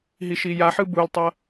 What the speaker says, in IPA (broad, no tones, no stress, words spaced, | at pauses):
ɦiʃijaħɯ bultˤʌ